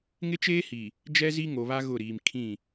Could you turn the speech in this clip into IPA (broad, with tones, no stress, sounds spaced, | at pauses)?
ŋ ɪ˦ t͡ʃ eː˦ h i˨ | d͡ʒ ɛ˦ z i˦ ŋ o˨ β a˦ ɣ ʊ˦˨ ɾ iː˨ m kʰ ĩ˦˨